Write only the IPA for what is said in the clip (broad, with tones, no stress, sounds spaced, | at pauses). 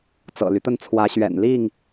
t͡s ɤ̰˨˩ l y˦ t̪ ə˥˨ n t͡sʰ w ä˨˦ ɕ ɥ ɛ̰˨˩ n l i˥˨ ŋ